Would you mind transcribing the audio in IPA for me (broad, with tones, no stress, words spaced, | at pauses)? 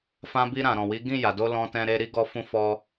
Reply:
fã˧bi˧ ɾã˨ɾɔ̃˨wi˨˦ ɡĩ˦˨ja˨do˧ lɔ̃˧tɛ̃˧ ɾe˧ɾi˦ɡɔ˧fũ˧ fɔ˧